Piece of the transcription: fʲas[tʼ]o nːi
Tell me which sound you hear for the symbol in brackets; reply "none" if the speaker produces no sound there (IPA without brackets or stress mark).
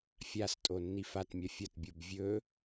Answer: tʼ